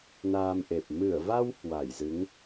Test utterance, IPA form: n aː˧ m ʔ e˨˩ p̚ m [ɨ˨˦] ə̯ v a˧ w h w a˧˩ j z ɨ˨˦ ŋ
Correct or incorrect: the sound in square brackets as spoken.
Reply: incorrect: ɨ˧˩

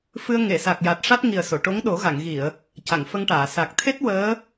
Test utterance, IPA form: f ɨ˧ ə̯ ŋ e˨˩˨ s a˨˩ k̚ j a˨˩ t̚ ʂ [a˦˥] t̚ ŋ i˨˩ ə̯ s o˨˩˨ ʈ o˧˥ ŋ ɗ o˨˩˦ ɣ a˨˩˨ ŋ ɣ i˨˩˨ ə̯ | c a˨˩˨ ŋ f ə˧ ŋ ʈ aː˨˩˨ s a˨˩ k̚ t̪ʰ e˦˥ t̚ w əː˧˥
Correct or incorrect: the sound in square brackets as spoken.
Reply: correct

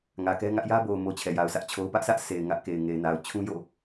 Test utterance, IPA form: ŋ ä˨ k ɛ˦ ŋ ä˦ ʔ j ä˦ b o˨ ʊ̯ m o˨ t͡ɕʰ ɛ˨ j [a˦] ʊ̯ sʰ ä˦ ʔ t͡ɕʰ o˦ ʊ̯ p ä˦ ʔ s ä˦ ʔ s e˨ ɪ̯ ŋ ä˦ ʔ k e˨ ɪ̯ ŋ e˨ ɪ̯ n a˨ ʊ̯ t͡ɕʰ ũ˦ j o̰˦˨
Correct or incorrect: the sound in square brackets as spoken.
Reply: incorrect: a˨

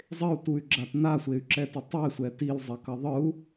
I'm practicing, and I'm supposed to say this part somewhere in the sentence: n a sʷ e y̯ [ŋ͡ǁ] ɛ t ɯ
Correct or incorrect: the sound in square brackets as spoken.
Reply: incorrect: ǁ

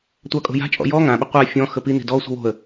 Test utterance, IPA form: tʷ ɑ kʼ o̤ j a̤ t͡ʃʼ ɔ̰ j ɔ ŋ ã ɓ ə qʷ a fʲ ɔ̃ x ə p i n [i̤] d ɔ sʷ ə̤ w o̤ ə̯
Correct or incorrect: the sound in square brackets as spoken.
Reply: correct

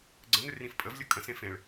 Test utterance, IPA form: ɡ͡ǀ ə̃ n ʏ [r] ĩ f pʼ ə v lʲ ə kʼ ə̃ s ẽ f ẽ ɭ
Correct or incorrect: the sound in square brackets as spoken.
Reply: correct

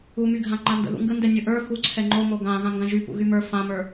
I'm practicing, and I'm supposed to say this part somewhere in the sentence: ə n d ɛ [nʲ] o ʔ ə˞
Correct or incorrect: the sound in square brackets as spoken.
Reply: correct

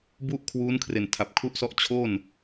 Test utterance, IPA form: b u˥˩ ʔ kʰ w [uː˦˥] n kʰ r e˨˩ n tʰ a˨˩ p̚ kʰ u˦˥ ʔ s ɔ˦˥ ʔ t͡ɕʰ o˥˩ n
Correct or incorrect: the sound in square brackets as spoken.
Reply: correct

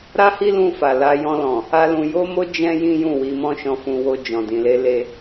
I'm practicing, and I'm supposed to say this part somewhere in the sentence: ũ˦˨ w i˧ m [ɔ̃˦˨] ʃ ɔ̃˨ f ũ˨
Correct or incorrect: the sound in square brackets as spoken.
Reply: incorrect: ɔ̃˧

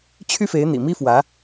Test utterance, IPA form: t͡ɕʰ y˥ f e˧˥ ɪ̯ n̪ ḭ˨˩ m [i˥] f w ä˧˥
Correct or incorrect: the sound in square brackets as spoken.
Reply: correct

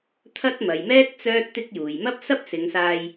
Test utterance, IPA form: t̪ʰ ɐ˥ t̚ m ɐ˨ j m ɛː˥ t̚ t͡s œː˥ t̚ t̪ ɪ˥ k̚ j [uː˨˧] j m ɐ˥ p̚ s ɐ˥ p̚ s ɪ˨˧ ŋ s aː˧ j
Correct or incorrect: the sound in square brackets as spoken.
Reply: incorrect: uː˨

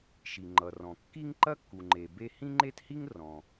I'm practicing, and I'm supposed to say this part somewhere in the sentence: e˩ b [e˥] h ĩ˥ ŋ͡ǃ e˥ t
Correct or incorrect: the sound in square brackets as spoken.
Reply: correct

